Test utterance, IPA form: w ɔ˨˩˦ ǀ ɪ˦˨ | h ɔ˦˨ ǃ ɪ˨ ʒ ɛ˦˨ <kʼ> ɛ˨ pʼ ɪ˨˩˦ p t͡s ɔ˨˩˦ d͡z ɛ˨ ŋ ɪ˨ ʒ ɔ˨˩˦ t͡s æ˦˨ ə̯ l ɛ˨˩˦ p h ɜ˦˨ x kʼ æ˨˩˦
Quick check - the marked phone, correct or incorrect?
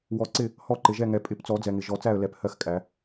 incorrect